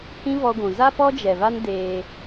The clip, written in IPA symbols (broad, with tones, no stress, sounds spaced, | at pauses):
h ĩ˦ v ɔ˦ ɡʷ ũ˨ z a˦ p ɔ˦ d͡ʒ ɛ˨ v a˦ n d eː˦